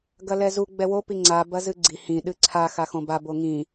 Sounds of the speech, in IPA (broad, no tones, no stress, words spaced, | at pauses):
ɡɐlɛzu ɡ͡bɛwo piŋ͡ǀa bɐzɨɡ͡ǀi hĩ ɗɨǀʰa xaxõba boŋĩ